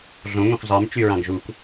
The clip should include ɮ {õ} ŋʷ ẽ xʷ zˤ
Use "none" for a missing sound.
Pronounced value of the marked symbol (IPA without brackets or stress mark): õ